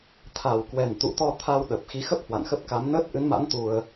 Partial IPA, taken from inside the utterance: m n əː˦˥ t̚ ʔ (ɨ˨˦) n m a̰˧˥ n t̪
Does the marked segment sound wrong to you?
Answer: no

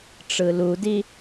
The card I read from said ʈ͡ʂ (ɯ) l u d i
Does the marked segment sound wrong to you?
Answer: no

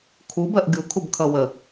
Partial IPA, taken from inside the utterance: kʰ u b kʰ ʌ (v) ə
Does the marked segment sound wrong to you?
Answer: yes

